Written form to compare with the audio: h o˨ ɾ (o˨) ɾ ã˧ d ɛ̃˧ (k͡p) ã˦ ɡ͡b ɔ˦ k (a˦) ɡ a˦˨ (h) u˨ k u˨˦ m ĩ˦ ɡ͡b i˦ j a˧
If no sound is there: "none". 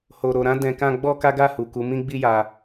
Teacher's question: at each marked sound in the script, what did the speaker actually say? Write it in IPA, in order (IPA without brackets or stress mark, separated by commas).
o˨, k, a˦, h